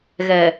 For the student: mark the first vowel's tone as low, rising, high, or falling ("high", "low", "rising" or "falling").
low